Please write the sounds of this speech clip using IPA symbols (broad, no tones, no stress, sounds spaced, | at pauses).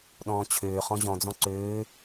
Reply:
ɗ ɔ̃ː t͡ɕʰ øː χ ɔ̃ ʑ ɔ̃ d͡z ɔ̃ ǀ øː